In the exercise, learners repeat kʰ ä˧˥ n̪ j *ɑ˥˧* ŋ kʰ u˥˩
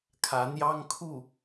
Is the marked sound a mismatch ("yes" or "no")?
yes